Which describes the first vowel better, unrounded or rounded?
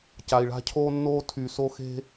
unrounded